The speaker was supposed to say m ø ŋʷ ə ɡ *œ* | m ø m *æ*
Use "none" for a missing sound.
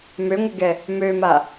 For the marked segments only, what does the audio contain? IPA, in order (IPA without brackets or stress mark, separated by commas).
ɛ, a